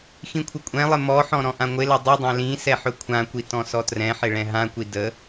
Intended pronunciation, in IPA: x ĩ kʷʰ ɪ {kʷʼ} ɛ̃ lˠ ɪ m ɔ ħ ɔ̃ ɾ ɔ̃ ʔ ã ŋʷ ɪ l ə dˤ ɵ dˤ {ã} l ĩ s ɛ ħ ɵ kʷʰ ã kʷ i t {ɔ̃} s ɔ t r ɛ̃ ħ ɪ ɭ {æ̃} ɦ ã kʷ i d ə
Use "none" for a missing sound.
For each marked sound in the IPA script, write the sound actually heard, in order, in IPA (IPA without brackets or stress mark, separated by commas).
kʷʼ, ã, ɔ̃, ɛ̃